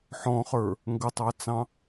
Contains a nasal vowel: yes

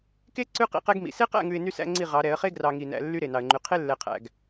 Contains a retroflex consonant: no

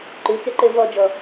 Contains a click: yes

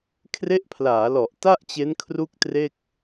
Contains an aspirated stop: yes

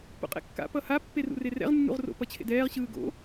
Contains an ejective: yes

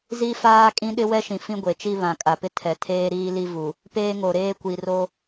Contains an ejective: yes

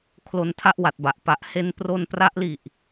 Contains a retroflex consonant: no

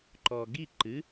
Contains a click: yes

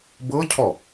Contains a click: no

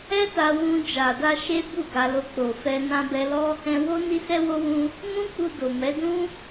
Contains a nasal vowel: yes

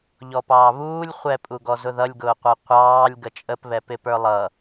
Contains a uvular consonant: yes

